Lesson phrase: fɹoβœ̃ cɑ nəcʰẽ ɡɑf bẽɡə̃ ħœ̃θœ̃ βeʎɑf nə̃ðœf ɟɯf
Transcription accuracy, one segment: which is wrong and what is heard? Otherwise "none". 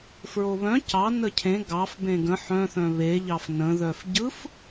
none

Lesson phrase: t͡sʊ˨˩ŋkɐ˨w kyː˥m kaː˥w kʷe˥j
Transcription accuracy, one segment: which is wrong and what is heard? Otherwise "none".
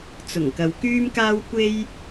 none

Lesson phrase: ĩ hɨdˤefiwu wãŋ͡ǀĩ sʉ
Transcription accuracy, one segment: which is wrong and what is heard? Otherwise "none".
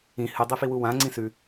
none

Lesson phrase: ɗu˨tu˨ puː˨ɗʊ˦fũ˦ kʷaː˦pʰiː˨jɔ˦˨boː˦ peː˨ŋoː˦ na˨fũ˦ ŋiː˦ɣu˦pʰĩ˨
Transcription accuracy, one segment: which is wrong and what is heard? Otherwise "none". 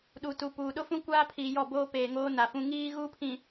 none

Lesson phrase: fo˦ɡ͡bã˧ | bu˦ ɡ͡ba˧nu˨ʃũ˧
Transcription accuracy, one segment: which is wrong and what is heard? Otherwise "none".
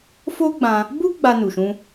none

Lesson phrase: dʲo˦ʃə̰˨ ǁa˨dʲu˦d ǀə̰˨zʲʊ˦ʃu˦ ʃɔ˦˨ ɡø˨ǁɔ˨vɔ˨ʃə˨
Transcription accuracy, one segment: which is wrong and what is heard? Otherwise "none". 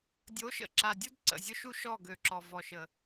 o˦ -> o˨˦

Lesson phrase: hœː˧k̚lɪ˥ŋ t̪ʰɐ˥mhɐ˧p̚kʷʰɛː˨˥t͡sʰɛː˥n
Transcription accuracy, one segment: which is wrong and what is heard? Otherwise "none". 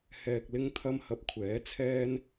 œː˧ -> ɛː˧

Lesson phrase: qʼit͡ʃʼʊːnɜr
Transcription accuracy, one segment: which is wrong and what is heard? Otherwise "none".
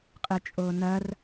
none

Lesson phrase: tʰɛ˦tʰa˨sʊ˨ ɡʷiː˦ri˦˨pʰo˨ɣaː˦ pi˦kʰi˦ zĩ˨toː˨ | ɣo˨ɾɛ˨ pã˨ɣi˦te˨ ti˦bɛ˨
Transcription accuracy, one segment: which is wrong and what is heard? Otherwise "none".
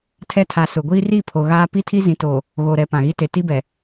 kʰ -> tʰ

